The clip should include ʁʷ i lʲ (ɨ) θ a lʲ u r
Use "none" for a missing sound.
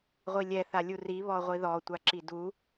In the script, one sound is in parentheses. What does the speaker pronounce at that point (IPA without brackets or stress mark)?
ɛ